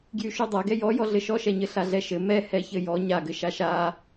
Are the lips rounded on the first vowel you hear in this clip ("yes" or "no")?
yes